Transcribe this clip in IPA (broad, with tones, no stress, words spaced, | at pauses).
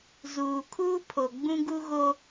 zuː˨kʰuː˦pʰo˨ ɡ͡bũ˦ɡu˦ɣo˦